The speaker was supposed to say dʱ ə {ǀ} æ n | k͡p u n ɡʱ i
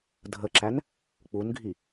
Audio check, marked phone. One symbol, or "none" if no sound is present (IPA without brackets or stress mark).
ǁ